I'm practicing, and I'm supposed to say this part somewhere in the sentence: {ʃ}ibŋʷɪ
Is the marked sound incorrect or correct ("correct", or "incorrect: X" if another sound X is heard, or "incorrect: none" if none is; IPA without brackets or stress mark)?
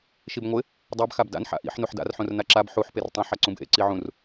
correct